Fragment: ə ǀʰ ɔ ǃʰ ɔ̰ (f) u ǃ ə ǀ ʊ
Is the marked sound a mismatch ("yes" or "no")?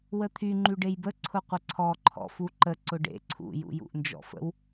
no